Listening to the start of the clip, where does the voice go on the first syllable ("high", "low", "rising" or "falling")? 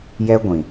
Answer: high